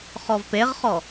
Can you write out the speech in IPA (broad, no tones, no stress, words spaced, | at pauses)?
χɔvpeʁχɔ